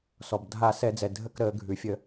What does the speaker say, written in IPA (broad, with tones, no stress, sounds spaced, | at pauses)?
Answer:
s ɔ˩ b dʱ a˧˩˧ s ɛ˧˩˧ d͡z ɛ˩ dʱ ə˦˨ k ɾ əː˧˩˧ ɡʱ ʉ˩ fʲ ə˧˩˧